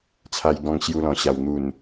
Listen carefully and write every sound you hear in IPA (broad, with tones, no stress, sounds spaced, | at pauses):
t͡sʰ a˧ j ɡ ɔ̃˧ ŋ ɕ j u˧ l ɔ̃˨˩ ɕ a˨˩ w n̪ u˨˩ n